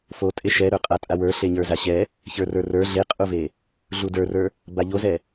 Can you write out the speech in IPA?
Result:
f o tʼ e ʃ ɛ ɾ ə˞ qʼ a tʼ a w ə˞ ɬ e ɲ ə˞ z a ɕ ɛ | ç ə˞ r ə˞ r ə˞ ɮ e qʼ u v e | ɮ u d ə˞ r ə˞ | b a ʎ o z ɛ

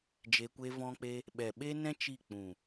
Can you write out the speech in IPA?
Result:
d͡ʒ e˧ kʷ e˦ v ɔ̃˦ k͡p e˦ | ɓ ɛ˨ ɓ e˦ n ɛ̃˦ t͡ʃ i˦˨ k͡p ũ˨

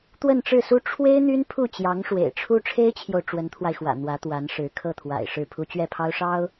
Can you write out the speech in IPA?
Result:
t̪ w ə˥˧ n ʈ͡ʂ ɻ̩˥˩ s u˥ ʈ͡ʂʰ w e˥ ɪ̯ n̪ y˥ n pʰ u˥˩ t͡ɕ j ɑ˧˥ ŋ ʂ w ḛ˨˩ ɪ̯ ʈ͡ʂʰ u˥ ʈ͡ʂʰ e˥ ɪ̯ t͡ɕʰ j o˨ ʊ̯ ʈ͡ʂ w ə˧˥ n t̪ʰ w a˧ ɪ̯ x w ä̰˨˩ n̪ w ä˧˥ t̪ w a˧˥ n ʂ ɻ̩˧˥ kʰ ɤ˥˩ t̪ʰ w a̰˨˩ ɪ̯ ʂ ɻ̩˥˩ pʰ u˥ t͡ɕ ɥ ɛ˥˩ pʰ ɑ˥ ʊ̯ ʂ ɑ˥ ʊ̯

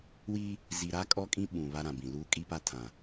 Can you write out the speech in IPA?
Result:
w iː˦ | z i˨ ɾ a˦ kʼ ɔ˦ kʼ ĩ˦ ɓ ũ˨ β a˦ ɾ ã˨ b ĩ˨ l uː˦ kʼ i˦ p a˦ tʰ ã˨

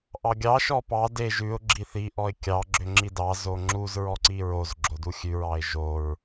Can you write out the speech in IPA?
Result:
ʔ ɑ ɡʲ ɑ ʃ ɔ p ɑ d e ʒ ʉ ʊ̯ ɡ͡ǁ i θ i ʔ ɔ ɪ̯ kʲ ɑ ɡ͡ǁ ø ŋ͡ǁ i d ɑ z o ŋ͡ǁ u z ɹ ɔ ǀ i ɹ o z ɡ͡ǁ o d u xʲ ʉ ɹ ɑ ɪ̯ ʒ o ɹ

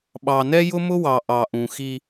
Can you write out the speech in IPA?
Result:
ɓ ɑ˨ n ɛ˦ j ʊ˦ m ʊ˦ w ɑ˨ ʔ ɑ˨ ʔ ũ˨ x i˦

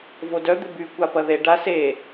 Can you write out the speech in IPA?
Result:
v o d œ d̪ ɪ b y kʷ a p ɐ ð e ɖ a s e

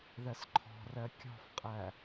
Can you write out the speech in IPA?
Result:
ð ɜ s ǃʰ ɔ̤ r ɜ kʲ ɔ̤ f qʼ æ

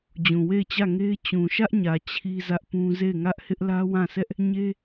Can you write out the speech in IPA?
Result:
d͡ʑ ũ˨ w e˦˨ ɪ̯ t͡ɕ ä˦˨ ŋ e˦ ɪ̯ t͡ɕ ũ˨ ʃ ä˦ ʔ ɲ ä˨ t͡ɕʰ i˦ z ä˦ ʔ p ũ˦ z e˦˨ ɪ̯ ŋ ä˦ ʔ h ɪ˦ ʔ l ä˦ w ã˦˨ s ɛ˦ ʔ | ɲ e˦

